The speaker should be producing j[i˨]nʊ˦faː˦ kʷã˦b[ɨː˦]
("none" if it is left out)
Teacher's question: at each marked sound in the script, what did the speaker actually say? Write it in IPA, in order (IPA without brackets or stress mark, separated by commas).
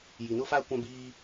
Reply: i˨, iː˦